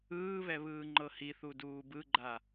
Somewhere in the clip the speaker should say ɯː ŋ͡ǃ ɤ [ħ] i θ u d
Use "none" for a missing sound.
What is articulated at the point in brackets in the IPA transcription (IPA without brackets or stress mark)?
h